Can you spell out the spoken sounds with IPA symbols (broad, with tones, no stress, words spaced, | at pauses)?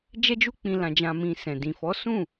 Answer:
d͡ʒɛ˦d͡ʒu˦k͡pĩ˧ lã˧d͡ʒã˧mĩ˧sɛ̃˨ dĩ˨fɔ˨˦sũ˦˨